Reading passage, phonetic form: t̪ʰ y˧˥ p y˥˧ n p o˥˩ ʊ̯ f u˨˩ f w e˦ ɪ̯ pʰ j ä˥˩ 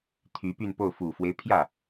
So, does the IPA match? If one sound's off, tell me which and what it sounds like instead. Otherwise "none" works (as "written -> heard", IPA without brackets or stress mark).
none